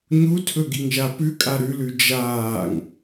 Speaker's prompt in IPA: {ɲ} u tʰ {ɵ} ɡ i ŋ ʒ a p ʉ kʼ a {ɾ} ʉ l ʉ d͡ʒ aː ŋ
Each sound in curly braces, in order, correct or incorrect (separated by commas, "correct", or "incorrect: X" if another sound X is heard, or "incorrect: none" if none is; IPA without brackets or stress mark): correct, correct, correct